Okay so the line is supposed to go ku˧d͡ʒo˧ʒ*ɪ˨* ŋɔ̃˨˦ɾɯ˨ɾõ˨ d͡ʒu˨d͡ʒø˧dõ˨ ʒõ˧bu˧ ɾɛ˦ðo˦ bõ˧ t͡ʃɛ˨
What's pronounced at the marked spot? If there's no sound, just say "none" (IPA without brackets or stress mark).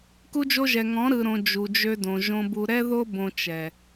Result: ɛ˨